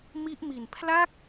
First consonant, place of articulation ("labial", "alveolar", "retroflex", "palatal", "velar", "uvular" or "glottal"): labial